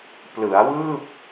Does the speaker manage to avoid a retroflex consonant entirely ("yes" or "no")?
yes